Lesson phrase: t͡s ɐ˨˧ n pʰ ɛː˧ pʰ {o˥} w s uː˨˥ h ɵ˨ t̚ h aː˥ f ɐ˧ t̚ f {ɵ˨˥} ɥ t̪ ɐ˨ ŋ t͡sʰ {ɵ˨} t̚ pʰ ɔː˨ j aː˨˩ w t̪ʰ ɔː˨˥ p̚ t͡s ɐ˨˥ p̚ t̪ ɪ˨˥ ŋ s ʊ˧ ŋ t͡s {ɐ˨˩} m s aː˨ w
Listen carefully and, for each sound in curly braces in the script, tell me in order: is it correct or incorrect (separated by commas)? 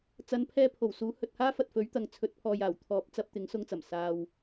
incorrect, correct, incorrect, correct